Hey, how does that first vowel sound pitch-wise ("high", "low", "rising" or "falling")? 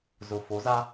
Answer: low